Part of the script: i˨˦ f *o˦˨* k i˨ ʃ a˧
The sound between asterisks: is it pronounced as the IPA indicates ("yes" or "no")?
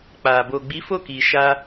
yes